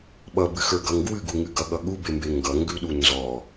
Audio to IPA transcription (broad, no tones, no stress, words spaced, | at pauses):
ɓʌbɨxə˞ɡʌŋ ɡwɨɡuŋɨ ɡʌɠʌ ɠubembe ŋɡʌŋɡʉɗu nzɔ